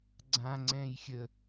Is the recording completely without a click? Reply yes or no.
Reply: no